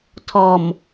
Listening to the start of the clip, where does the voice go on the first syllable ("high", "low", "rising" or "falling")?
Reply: low